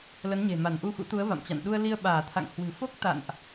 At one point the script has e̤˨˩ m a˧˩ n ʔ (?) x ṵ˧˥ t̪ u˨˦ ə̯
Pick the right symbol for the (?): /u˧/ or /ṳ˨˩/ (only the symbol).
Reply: u˧